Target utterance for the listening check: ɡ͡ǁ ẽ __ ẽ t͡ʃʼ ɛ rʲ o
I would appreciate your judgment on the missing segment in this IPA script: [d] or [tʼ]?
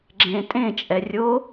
tʼ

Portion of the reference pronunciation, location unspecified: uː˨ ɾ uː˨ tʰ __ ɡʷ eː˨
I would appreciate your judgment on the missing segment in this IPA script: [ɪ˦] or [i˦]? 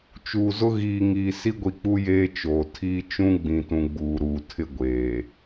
ɪ˦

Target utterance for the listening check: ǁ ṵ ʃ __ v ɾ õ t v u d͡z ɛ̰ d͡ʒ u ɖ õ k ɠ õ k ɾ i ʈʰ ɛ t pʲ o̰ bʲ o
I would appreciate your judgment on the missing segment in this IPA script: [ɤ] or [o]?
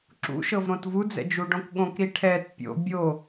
ɤ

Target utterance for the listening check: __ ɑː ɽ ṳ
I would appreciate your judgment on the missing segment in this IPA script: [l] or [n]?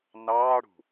n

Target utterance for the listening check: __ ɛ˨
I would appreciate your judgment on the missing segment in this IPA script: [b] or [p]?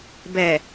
b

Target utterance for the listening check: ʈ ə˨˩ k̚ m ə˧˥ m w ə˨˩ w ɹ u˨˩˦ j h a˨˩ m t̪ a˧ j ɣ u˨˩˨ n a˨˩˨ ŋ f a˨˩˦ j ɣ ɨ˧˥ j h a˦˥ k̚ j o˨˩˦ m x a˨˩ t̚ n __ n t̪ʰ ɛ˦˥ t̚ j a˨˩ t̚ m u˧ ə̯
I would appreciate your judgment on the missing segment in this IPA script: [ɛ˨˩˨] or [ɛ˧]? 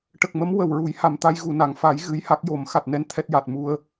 ɛ˧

